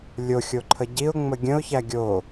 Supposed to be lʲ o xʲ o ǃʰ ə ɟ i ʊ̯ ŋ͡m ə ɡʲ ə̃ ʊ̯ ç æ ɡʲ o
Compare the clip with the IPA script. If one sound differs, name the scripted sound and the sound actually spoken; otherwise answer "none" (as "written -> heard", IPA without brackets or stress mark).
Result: none